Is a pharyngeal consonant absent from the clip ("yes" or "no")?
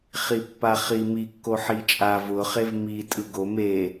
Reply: no